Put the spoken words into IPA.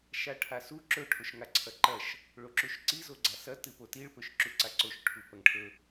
ʃ a ʈʰ a s u ǁ ɵ ʈʰ o ʃ ŋ a ǀʰ ɐ ǃ ɐ ʃ | ɭ o ǁ u ʃ ǀ i z o ɡ͡ǀ a s ɐ t ɨ p o t i ɭ p ɵ ʃ ǁ u ǀ a ǀ o ʃ ʈʰ u p ɐ ŋ ʈʰ ɵ

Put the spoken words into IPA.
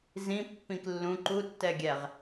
z ĩ pː ĩ k lː ũ ǃ u tː ɛ ɡʲ ɛ ʁ

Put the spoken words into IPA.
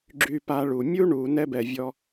ɡ͡ǁ y˧ p a˧ ɭ u˨ mʲ u˧ ɳ u˨ n ɛ˦ b ɛ˧ vʲ ɔ˦

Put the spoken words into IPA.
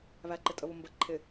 β æ ǃ ɪ tʼ ə β ʊ m b ə ǃʰ ɪ

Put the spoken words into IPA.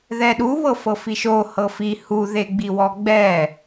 ð ɛ ɗ u β ɤ f ɤ f i ʃ o h ɤ f i h u ð e ɡ͡b i w ɔ ɡ͡b ɛ

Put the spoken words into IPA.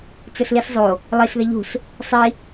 t͡s ɘ s l i s zˤ o | lˠ i s ð e ʎ ṳ s | sˤ i

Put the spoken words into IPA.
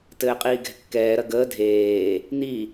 t ɘː qʼ iː ɡ ɛ̤ kː ɛː ɾ ɐ ɡ əː dʱ eː | n̪ i

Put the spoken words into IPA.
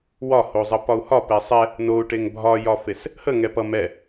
w ɒ h o zˤ ʌ p ɒ u̯ h ɒ p ɛ sˤ ɛ | n o u̯ ʈ e ŋ bʱ ɒ j ɒ f e s | h ə ŋ ɛ p ʌ m ɛ

